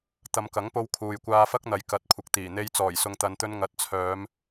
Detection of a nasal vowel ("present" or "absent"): absent